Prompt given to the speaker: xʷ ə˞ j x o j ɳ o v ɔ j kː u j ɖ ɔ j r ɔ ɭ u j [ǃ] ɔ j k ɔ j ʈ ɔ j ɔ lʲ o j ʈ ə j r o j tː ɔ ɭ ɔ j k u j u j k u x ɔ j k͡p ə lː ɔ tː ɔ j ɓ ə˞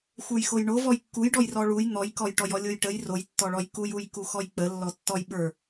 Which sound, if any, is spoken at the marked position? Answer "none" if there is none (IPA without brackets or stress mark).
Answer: n̪